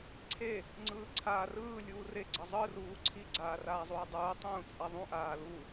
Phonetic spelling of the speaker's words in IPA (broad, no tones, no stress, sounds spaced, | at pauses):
ǀʰ e | ŋ͡ǀ ɯː ǀʰ aː r ɯː lʲ uː r e ɡ͡ǀ ʌ zˤ ɯ r uː ǀʰ i ɡ͡ǀ aː r aː zˤ uː dˤ uː tˤ ũː t͡sʼ a ðˤ ũ ʔ aː l u